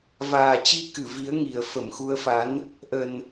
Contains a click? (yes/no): no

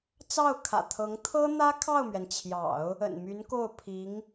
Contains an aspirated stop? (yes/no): yes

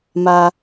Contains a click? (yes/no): no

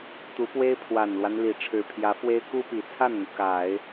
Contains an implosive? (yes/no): no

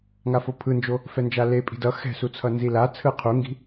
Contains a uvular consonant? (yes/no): yes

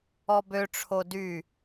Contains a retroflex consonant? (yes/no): yes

